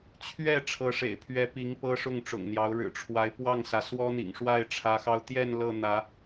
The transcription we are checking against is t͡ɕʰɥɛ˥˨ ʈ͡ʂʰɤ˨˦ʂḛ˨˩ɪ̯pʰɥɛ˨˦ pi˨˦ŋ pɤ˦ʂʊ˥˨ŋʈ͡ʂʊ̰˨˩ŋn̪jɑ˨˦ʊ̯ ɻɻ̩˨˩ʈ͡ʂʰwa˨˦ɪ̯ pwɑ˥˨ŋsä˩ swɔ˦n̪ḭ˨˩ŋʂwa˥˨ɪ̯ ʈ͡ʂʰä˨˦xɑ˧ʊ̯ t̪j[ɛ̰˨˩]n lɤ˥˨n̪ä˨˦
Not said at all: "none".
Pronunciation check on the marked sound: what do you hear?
ɛ˥˨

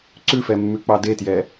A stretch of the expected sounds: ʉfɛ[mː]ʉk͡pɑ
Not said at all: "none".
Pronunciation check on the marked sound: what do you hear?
mː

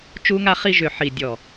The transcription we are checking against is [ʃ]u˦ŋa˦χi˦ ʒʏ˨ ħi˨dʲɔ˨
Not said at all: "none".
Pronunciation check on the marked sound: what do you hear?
t͡ʃ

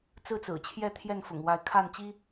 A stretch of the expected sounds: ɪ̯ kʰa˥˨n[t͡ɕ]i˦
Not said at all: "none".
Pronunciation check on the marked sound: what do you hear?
t͡ɕ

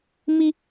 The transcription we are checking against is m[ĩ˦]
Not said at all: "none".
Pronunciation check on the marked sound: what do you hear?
i˦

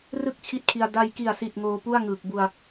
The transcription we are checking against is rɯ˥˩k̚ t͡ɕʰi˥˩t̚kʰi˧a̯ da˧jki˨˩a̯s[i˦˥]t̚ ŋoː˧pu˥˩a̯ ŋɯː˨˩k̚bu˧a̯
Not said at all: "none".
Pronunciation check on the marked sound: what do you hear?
i˨˩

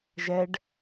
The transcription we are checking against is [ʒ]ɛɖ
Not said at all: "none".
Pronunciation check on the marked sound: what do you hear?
ʒ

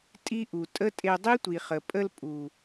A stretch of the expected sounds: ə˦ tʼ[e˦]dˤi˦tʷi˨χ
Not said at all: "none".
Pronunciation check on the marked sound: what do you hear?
e˧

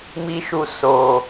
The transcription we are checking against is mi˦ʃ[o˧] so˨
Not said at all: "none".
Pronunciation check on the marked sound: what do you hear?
u˧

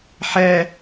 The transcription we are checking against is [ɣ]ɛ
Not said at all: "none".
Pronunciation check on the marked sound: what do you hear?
ħ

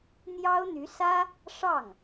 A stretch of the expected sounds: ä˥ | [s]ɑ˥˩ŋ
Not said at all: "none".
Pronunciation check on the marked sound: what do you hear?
ʂ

